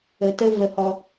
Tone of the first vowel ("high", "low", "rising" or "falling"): low